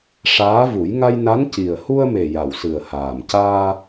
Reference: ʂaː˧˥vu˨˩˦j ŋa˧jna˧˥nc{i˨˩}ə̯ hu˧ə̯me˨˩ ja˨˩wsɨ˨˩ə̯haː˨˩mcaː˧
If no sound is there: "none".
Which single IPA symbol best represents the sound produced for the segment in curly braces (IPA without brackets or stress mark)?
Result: i˨˩